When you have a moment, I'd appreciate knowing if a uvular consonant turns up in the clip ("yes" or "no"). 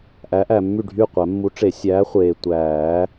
yes